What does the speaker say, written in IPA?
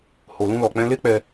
h o˧ l ũ˦ l ɔ˧ k͡p ɛ̃˦ l e˦ k͡p ɛ˧

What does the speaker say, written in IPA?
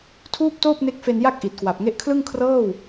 tʰ uː˥˩ p̚ t oː˥˩ p̚ n e˦˥ k̚ f e˧ n j a˥˩ k̚ ʔ i˨˩ t̚ k w a˨˩ p̚ ŋ e˦˥ ʔ kʰ l ɯ˥˩ ŋ kʰ r ɤː˥˩ w

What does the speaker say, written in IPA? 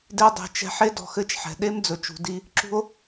d e˧ dˤ e̤˨ t͡ʃ ɛ̤˧ ħ e˦ d ɔ̤˨ x ɘ˦˨ t͡ʃ ħ ɛ̤˨ ɗ e˦ m d͡z ɵ˨ t͡ʃ ṳ˨ d i˦ | ǁ ṳ˧ o̯

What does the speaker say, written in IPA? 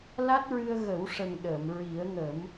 l a˦˥ t̚ ɹ ɨ˧ ə̯ ɣ ə˨˩˦ w ʂ ə˨˩ ŋ ɗ əː˨˩˨ m ɹ i˨˩˦ ə̯ ŋ ə˨˩˦ m

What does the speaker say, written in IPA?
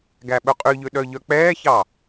ɡ æ ɓ ɵ qʼ y ʎ ø ɗ œ ʎ œ k͡p ɛː ç ɑ

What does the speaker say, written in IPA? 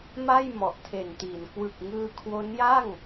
m a˥˩ j m ɔ˨˩ ʔ tʰ e˨˩ n t iː˩˦ n k w ɯ˨˩ k̚ ŋ ɯː˧ kʰ w o˦˥ n j a˥˩ ŋ

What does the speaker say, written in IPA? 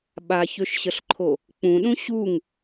ɓ a ç ø ʃ ɕ ə ɬ ǃʰ o | k͡p ũ ɗ ũ ɕ u ŋ

